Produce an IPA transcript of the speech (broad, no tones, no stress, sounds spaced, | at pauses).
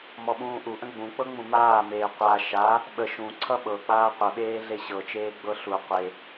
m ɔ ɓ ũː ʔ u ʔ ə̃ ɡ͡b ũ k͡p ɤ ŋ͡m ũ m aː m eː qʷ a ʃ a | ɓ ə ʃ ũ ǀʰ ʌ ɓ ɤ k͡p aː qʷ ə ɓ eː ɮ e ɕ ɤ t͡ʃ eː ɡ͡b ɤ ɬ u qʷ e